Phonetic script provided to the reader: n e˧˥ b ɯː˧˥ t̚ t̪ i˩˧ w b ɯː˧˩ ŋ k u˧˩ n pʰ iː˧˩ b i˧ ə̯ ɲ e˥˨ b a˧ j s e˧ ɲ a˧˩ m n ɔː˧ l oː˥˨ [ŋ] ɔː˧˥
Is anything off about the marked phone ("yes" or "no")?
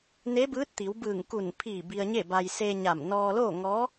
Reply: no